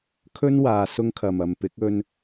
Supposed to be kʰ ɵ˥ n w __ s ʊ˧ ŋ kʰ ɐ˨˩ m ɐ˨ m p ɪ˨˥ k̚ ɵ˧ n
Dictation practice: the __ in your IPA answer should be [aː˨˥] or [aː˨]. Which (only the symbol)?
aː˨